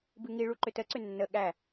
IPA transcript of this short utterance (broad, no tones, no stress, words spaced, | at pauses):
bɨŋiɭu ǃʏtəǀʏ nːə ɠæ